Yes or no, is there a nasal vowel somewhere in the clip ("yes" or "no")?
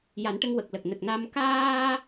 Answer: no